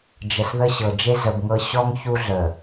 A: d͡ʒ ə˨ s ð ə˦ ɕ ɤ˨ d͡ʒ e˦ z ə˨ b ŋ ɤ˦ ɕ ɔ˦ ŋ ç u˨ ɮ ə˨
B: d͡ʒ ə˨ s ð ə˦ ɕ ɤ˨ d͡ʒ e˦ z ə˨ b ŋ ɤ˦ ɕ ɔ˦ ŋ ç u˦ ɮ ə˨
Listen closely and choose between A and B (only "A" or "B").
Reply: B